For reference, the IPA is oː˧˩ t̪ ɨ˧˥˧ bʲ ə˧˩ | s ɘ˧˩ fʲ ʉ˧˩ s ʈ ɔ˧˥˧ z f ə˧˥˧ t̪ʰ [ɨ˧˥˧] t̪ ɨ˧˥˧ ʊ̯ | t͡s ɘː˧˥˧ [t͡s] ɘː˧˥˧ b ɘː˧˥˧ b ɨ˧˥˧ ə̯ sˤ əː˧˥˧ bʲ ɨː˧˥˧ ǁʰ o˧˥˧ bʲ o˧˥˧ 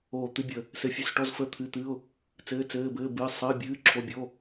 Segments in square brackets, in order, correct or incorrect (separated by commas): correct, correct